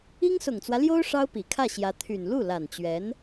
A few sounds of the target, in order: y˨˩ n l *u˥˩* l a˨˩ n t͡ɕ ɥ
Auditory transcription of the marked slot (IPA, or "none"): u˥˩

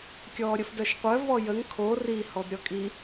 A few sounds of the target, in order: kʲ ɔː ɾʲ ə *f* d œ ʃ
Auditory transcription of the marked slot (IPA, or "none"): f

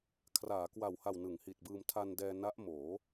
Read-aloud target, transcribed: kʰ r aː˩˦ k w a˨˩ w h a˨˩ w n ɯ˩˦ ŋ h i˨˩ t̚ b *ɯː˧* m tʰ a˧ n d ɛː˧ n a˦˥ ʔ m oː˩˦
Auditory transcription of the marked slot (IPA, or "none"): ɯː˧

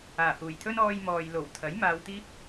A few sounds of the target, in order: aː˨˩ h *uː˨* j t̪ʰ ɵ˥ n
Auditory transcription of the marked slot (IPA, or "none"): uː˨˩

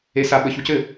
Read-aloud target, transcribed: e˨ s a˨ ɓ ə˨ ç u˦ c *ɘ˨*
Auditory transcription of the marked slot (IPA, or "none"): ɘ˨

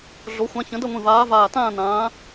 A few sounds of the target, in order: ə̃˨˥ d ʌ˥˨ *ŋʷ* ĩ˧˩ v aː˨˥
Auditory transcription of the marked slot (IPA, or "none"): ŋʷ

